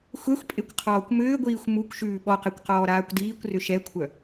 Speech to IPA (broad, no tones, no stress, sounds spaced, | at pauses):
xʷ ɛ xʷ pʼ e kʷ qʰ ɔː kʷ m ʏː ɡʷ iː xʷ m u kʷ ʃ ʉː ɓ ɔ q ɛ kʷ q ɔː ɾ aː kʷ d iː kʷ r ʏ ʃ ɛ kʷʰ œ